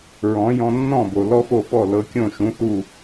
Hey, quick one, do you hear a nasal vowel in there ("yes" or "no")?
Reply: yes